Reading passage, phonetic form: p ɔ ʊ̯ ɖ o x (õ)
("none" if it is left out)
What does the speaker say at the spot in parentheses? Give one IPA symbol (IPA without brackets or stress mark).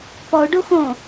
õ